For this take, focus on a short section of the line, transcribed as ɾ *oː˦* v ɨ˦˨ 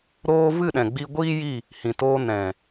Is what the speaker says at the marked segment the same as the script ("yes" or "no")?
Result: no